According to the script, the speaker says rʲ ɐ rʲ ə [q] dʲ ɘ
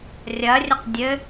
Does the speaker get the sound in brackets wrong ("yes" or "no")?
no